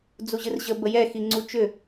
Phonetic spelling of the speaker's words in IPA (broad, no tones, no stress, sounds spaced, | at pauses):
d͡z u ʑ ɨ r ʑ ə b ə j ɛ x i ŋ͡ǀ u t͡ʃ ʏ